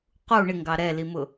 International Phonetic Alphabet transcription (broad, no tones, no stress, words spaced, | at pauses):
qu ɳɪŋɡɑ ɾɛlimʊ